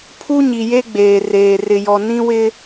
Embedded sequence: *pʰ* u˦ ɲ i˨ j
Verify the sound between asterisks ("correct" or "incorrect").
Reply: correct